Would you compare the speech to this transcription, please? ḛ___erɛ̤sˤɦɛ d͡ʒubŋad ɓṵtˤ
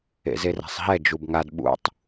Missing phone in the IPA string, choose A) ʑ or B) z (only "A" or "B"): B